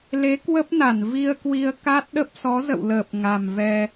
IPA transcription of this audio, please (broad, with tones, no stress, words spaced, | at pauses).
le˨˦ kwə˦˥p̚na˧˩n vi˧ə̯kwi˧ə̯ ka˦˥t̚ɗə˦˥p̚ sɔ˨˦zə̰˧˨wləː˨˩p̚ ŋa˨˩mvɛ˧